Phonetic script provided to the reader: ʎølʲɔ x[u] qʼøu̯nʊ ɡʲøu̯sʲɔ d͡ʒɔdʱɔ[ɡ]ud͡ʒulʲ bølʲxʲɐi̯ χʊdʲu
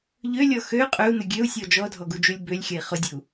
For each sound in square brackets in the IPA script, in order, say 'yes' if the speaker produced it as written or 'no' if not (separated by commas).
no, yes